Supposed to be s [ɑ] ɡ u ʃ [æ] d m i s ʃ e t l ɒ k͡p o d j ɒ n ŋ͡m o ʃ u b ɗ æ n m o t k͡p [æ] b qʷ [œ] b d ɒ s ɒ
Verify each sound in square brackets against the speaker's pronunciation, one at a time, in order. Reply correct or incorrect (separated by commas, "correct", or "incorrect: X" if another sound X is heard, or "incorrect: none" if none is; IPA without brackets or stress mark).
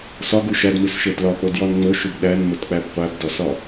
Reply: incorrect: ɒ, correct, correct, incorrect: æ